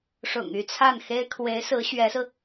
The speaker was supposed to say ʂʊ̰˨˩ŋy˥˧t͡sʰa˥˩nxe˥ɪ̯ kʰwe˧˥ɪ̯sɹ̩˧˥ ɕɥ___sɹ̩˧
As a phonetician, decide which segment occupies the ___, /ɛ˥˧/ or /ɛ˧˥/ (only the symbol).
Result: ɛ˧˥